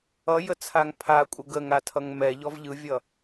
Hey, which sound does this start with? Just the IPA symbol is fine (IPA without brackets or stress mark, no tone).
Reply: ʌ